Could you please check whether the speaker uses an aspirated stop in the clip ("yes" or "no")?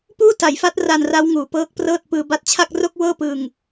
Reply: yes